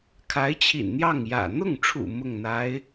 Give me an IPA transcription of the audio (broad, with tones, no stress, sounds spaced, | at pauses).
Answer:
kʰ a˧˥ ɪ̯ t͡ɕʰ ḭ˨˩ n n̪ j ɑ˥˩ ŋ j ä̰˨˩ n̪ ʊ˥˩ ŋ ʈ͡ʂʰ ṵ˨˩ m ʊ˥˩ ŋ n̪ a˧˥ ɪ̯